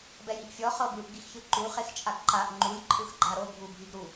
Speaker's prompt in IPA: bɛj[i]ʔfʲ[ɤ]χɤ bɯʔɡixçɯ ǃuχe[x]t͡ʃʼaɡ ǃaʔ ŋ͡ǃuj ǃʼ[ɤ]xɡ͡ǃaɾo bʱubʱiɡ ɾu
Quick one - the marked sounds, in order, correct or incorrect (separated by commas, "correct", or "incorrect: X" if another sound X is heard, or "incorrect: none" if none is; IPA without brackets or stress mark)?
correct, incorrect: ɔ, correct, incorrect: ɯ